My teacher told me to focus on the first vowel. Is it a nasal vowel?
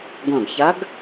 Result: yes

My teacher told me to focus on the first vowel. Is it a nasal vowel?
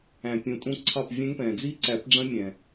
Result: yes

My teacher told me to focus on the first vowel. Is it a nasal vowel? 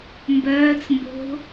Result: no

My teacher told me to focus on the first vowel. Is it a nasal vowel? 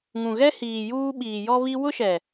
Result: yes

